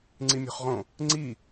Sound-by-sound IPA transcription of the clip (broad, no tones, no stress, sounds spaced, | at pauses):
ŋ͡ǀ i mʲ o̤ χ ʁ õ | ŋ͡ǀ i